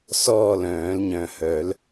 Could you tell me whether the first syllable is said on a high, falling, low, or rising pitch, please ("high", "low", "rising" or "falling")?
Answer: falling